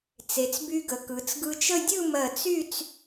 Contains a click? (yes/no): no